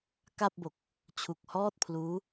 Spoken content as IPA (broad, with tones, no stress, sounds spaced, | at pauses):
k a˥˩ p̚ b o˨˩ k̚ | t͡ɕʰ u˨˩ k̚ h ɔː˥˩ t̚ pʰ l uː˦˥